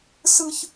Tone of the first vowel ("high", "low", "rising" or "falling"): high